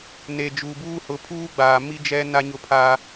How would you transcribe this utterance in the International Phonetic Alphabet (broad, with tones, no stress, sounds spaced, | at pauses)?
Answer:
n e˨ d͡ʒ uː˨ b uː˦ h ʊ˨˦ pʰ uː˦ ɡ͡b aː˨ m i˦ d͡ʒ ɛ˦ n a˦ ɲ ʊ˦ pʰ aː˦